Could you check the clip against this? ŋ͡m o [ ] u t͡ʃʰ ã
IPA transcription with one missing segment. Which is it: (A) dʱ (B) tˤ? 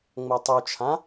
B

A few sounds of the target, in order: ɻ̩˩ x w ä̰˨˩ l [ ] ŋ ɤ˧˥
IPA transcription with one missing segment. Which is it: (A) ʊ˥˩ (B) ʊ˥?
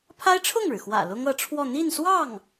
B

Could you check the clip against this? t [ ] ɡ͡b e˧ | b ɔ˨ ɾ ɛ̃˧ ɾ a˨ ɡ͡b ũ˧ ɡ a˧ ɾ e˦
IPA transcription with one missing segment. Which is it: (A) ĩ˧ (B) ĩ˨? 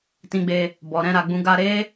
A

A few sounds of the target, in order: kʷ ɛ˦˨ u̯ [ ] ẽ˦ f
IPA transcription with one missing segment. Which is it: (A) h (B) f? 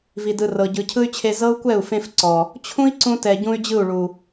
B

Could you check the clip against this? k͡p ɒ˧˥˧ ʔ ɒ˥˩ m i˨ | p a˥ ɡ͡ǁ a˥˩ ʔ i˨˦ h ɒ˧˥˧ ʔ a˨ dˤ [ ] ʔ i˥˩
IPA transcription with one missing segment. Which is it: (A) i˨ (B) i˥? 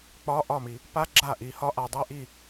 B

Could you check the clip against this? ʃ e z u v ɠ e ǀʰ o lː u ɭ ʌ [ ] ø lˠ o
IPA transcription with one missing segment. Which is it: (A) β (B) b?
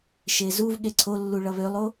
A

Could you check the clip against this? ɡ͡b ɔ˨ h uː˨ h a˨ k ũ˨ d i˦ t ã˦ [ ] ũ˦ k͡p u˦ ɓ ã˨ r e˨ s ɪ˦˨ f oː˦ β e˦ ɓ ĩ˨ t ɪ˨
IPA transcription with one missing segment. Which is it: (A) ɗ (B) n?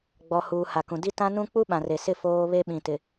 B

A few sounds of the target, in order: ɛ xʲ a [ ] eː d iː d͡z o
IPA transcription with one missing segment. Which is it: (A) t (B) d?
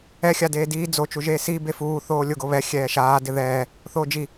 B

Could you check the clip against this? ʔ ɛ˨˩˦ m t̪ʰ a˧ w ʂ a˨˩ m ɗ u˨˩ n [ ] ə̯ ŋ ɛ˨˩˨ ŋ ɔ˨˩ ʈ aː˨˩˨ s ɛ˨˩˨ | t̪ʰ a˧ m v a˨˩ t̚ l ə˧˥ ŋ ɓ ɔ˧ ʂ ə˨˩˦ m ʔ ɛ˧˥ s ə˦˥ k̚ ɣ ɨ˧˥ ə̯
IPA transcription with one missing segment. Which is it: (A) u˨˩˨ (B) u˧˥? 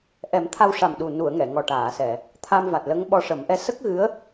A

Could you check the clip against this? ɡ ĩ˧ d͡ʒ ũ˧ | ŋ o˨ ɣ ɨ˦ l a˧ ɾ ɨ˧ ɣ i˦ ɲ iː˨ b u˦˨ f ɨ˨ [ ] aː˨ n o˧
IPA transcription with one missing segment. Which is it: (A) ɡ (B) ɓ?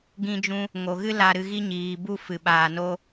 B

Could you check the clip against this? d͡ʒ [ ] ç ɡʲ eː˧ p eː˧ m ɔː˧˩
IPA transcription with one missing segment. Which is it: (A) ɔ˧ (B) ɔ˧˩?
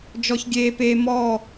A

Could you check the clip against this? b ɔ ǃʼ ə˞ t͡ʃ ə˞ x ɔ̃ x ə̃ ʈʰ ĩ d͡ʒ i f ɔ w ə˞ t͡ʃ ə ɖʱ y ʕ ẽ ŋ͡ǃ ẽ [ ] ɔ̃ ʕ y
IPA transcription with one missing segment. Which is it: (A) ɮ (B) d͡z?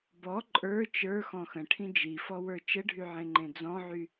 B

